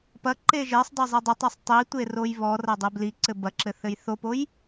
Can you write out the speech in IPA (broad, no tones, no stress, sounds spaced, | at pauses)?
p ɐ ǃ e ʒ e sˤ dˤ o zˤ i dˤ ɘ tˤ e sˤ tˤ i tʷ e r o j β ɔ r ɐ dˤ e b l i ǀ ɘ b ɐ ǁ ɘ θ ɘ j θ o p o j